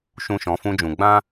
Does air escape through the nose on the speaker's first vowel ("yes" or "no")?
yes